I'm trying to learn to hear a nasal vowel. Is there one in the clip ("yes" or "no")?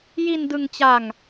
no